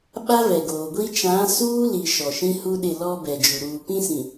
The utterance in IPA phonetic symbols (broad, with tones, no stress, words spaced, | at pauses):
ɓa˦vɛ˨ɡoː˨ɡʷi˦ t͡ʃã˨˦suː˦li˨ ʃɔ˨ʃĩ˦hu˦ɗɪ˦˨ lɔ˦bɛ˨d͡ʒu˨ ɾuː˨ pĩ˦sĩ˨